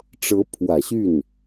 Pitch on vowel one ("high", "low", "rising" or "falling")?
rising